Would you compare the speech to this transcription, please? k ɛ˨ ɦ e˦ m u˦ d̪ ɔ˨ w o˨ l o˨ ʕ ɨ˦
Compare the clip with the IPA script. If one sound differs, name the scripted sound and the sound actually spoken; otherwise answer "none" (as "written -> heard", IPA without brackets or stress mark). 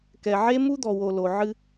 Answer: ɦ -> ʕ